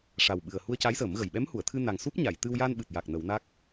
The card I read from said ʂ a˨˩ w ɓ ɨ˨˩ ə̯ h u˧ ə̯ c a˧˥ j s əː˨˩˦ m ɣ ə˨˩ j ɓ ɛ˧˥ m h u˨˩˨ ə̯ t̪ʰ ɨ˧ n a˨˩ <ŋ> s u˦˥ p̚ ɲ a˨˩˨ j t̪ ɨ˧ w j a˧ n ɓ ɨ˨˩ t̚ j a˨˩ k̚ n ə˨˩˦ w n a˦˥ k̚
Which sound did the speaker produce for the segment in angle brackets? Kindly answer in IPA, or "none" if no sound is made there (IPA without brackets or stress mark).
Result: ŋ